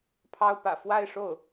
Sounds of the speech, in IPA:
pʰɑ˥ʊ̯pä̰˨˩ fwa˥˧ɪ̯ʂo˥˩ʊ̯

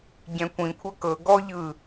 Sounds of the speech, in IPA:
ɟɛ̃kʷĩkʷʰɤ kɤ ɡɔ ʎɯ

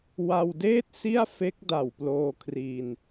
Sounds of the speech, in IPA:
wa˧wdeː˥˩t̚ si˥˩a̯fe˦˥k̚da˨˩w ploː˧kʰri˧n

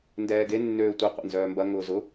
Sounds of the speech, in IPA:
ndɛːɡe nːøːtʷe qʷɛ̰nzœːmbɐ ŋʊːzʊ

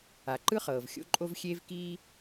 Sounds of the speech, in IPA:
a˨ǃɯ˦χɤː˨v xʲo̰˦ǃʼo˦v xʲeː˦vkiː˦

